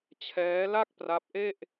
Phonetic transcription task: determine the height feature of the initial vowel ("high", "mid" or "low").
mid